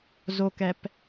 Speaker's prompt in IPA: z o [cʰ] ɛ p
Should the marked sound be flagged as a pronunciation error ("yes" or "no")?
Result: yes